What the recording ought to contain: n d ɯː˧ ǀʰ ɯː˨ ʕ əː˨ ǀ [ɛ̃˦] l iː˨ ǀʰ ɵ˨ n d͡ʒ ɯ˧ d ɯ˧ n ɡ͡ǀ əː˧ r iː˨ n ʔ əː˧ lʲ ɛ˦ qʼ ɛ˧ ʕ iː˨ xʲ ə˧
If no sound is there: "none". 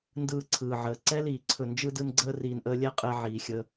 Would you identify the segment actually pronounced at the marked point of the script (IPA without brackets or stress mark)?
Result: ɛ˦